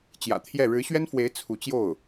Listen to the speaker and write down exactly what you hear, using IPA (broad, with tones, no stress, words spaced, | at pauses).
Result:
t͡ɕjä̰˨˩t̪ʰjɛ˥˩ ɻɻ̩˧˥ɕɥɛ˥nfwe˧˥ɪ̯ t͡sʰu˧˥t͡ɕjo˥˩ʊ̯